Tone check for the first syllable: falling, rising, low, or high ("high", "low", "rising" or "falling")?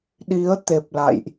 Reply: rising